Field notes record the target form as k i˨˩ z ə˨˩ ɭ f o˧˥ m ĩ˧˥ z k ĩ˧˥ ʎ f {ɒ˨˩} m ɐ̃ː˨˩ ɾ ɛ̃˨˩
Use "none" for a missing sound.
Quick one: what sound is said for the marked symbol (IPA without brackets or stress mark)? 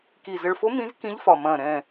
ɒ˨˩